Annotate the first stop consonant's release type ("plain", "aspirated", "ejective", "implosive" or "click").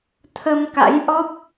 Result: aspirated